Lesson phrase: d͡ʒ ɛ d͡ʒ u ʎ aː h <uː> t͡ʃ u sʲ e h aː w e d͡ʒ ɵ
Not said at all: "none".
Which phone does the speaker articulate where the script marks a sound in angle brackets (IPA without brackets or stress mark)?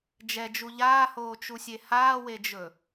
oː